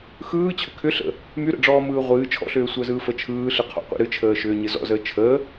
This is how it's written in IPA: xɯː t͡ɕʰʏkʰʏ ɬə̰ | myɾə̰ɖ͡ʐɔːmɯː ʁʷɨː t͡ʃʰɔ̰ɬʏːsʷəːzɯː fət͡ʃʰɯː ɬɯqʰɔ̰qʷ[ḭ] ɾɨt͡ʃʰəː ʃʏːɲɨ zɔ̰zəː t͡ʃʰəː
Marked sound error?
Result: no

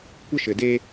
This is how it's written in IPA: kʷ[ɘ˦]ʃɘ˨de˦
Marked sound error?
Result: no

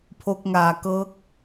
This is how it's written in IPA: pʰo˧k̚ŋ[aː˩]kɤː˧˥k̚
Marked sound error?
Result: no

